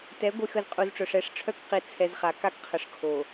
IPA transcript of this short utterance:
t ɛ˨˦ ɡʷ i˨ x ə˨ z qʼ u˨ z ʈ͡ʂ œ˨ ʂ ɛ˦˨ ʂ ʈ͡ʂʰ œ˦ k q i˨ t͡sʰ ɛ˨ z χ a˨ k a˦ k qʰ ə˨ ʂ kʰ o˨

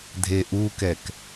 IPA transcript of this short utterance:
dʱ e ʔ u k ɛ k

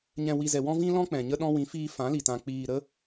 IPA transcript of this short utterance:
ɲ ɛ̃˨ w i˨ z ɛ˨ w ɔ̃˦ v ĩ˦ l ɔ̃˦ k͡p ɛ̃˨ ɲ ə˧ ɗ ɔ̃˧ w ĩ˨˦ f iː˧ f ã˨˦ l i˨ t ã˨ k͡p iː˨ ɾ ə˦

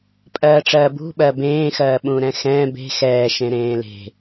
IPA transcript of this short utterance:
pʼ ɜː ʈ͡ʂ ɜː b ṳ ɓ ɜː b ẽː x ɜː ɓ ũː ɾ ɛ̃ x ɛ̃ː b e̤ x ɛː ʃ ẽ ɾ ẽː l e̤

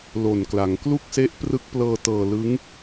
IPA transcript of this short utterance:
l o˨˩ n k l a˩˦ ŋ k l u˥˩ k̚ s e˦˥ ʔ p r ɯ˦˥ k̚ p l ɤː˧ t ɤː˧ l ɯ˦˥ ŋ

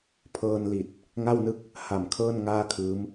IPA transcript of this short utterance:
pʰ ɤː˧ n l i˨˩ t̚ | ŋ a˥˩ w n ɯ˥˩ k̚ | h a˨˩ m kʰ ɤː˥˩ n ŋ aː˥˩ kʰ ɯː˦˥ m

